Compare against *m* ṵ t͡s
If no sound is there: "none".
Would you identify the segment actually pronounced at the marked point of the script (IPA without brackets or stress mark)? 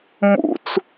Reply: m